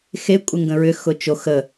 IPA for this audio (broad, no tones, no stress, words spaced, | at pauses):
xe kʷʼɪŋɡə̃ɹʏ xʊt͡ʃo xə